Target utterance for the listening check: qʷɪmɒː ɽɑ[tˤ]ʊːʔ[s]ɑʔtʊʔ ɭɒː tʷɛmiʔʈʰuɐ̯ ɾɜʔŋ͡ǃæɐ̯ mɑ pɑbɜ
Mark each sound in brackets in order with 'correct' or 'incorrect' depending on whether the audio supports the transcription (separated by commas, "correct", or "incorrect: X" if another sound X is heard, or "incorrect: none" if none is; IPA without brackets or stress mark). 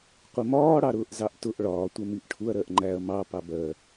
incorrect: ɾ, incorrect: z